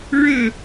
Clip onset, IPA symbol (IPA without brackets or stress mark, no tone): ɻ